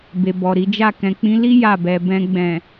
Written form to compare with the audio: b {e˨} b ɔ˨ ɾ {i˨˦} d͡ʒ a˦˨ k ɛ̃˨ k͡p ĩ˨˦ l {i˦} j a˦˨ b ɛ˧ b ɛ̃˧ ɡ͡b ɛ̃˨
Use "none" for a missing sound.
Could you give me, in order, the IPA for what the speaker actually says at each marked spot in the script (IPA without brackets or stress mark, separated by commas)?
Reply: e˨, i˨˦, i˦